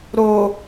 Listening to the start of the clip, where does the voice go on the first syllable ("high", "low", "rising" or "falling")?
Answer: low